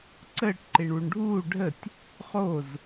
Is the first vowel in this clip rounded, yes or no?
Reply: no